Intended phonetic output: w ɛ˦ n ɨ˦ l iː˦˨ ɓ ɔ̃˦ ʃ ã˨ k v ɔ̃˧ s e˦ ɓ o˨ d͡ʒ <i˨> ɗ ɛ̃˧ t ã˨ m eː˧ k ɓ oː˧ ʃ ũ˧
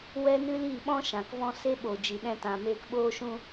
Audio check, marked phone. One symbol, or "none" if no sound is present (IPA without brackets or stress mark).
i˨